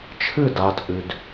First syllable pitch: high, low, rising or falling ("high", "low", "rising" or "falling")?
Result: falling